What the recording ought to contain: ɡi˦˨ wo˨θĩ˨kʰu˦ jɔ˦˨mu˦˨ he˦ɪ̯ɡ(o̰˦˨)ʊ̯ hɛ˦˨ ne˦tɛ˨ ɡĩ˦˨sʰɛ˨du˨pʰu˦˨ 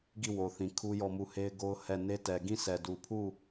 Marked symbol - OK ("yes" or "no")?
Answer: no